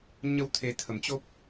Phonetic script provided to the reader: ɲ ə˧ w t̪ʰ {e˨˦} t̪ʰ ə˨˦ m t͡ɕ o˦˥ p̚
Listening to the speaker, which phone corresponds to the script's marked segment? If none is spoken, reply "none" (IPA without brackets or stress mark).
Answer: e˨˦